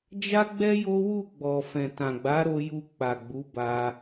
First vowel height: low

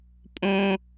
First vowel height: mid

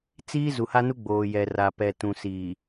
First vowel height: high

